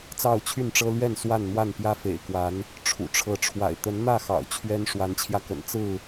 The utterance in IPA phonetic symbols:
t͡s ɑ˥˨ ʊ̯ t͡ɕʰ y˥˨ n ʈ͡ʂ ɤ˦ l ɥ ɛ˥˨ n s w a˥˨ n n̪ w a˥˨ n p j ä˦ f ḛ˨˩ ɪ̯ k w a˨˦ n | ʈ͡ʂʰ ṵ˨˩ ʈ͡ʂʰ ɤ˨˦ ʈ͡ʂʰ w a̰˨˩ ɪ̯ t̪ ə˨˦ n n̪ ä˥˨ x ɑ̰˨˩ ʊ̯ t͡ɕʰ ɥ ɛ˦ n ʂ w a˨˦ n t͡ɕʰ j ä˧ k ə̰˨˩ n t͡s ɹ̩˥˨

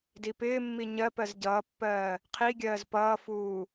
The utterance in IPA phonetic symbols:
d i p ɪː mː i ɲ ɜ p ɜ z ɟ ʌː pː ɜː | qʰ i ɡʲ ɜː z p ʌː f uː

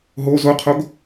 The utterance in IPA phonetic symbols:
ɦ o z o qʰ o ɡ

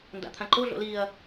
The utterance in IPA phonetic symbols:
n d a̰ t̪ʰ ã ǃ o ɮ o̰ l i ɐ̯

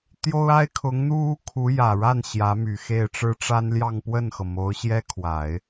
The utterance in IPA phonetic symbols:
t̪ j o˥ ʊ̯ a˥ ɪ̯ kʰ ʊ˧˥ ŋ n̪ u˥ u˥ kʰ u˧˥ j ä˨˩ ɻ a˥˩ n ɕ j ä˧˥ m y˨˩ x e˥˩ ɪ̯ ʈ͡ʂ ɻ̩˥ ʈ͡ʂ a˥ n l j ɑ˥˧ ŋ p w ə˥˩ n x ɤ˩ m o˧˥ ʊ̯ ɕ j ɛ˥ kʰ w a˨˩˦ ɪ̯

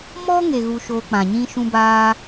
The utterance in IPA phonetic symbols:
m ɔ˦ ŋ e˨ ɣ u˧ ʃ oː˧ k͡p ã˨ ɲ ĩ˦ ʃ ũ˦ b aː˦

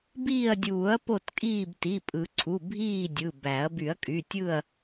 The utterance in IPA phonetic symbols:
b iː˦˨ ɐ̯ dʲ uː˨˩˦ ɐ̯ p o˦˨ t kʼ iː˦˨ b t i˩˧˩ pʼ ɯ˨˩˦ ǀʰ u˩˧˩ bʱ iː˦˨ dʲ ɯ˩˧˩ b æ˨˩˦ ɐ̯ b y˨˩˦ ɐ̯ kʼ y˩˧˩ tʲ ɯ˦˨ ɐ̯

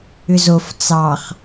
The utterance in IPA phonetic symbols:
ʏ z o f t͡s ɑ χ

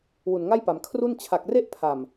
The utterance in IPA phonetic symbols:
w u˨˩ n ŋ a˥˩ j p a˩˦ m kʰ r u˥˩ n t͡ɕʰ a˨˩ k̚ r e˥˩ ʔ pʰ a˨˩ m

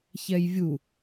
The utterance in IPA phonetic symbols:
ç ɛ j vʲ u

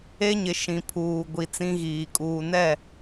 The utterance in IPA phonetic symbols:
e˦ ɲ ɪ˨ ʃ ĩ˨ pʰ uː˨ ɡʷ i˨ t͡s ĩ˦ ɣ iː˨ kʼ uː˨ n ɛ˦˨

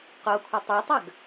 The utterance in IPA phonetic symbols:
q o kʷʰ ɘ tˤ e tˤ ɐ ɡ

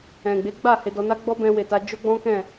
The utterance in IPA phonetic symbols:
ɛ̃˨ ɡ͡b e˨˦ ɡ͡b a˦˨ h e˧ d ɔ˧ n a˦ ɡ͡b ɔ˦ b ɛ̃˧ w e˨ t a˧ d͡ʒ o˦ ɡ͡b ɔ̃˦ k ɛ̃˦˨

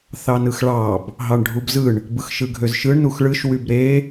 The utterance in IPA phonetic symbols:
θ ɑ n ɯ x ɭ ɑ b | ɦ ɑ ɳ ɖʱ u b z ɯ ɳ | b ɯ x ʃ ɯ ɡʱ ø z ʃ ɯ ɳ n u x ɭ ɯ ʃ w y b ɾ e

